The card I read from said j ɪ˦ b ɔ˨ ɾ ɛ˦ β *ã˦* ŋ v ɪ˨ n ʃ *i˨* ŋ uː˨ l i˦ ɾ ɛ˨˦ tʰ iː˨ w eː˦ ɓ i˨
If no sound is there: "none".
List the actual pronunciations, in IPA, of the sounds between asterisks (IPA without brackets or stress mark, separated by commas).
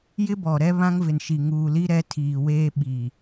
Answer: ã˦, i˨